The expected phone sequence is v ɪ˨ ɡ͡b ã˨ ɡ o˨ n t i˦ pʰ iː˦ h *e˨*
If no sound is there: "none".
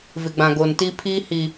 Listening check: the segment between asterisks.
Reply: i˨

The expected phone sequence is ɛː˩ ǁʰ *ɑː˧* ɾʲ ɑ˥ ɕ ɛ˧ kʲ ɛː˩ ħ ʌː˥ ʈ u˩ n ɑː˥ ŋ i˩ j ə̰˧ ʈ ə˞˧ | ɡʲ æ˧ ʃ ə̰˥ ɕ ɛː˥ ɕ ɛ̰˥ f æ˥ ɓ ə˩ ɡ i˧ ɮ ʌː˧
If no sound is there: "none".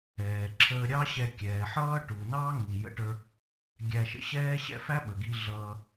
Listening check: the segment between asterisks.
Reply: əː˧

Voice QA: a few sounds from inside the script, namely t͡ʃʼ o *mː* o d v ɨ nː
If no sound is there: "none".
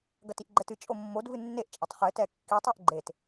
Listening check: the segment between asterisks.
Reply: mː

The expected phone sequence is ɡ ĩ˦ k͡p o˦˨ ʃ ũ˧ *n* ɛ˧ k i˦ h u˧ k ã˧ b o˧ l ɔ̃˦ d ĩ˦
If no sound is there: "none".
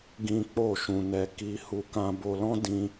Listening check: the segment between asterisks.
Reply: n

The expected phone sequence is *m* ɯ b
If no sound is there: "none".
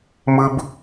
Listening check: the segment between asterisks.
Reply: m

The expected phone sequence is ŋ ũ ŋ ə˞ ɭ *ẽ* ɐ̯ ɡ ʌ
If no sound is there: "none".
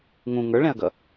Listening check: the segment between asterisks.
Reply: ɛ̃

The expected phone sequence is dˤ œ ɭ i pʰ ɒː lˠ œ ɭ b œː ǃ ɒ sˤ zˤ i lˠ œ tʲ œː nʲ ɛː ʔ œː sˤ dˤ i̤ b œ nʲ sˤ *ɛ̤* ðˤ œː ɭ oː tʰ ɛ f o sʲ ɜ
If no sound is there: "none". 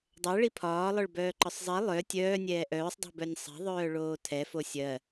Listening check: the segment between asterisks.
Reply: ɛ̤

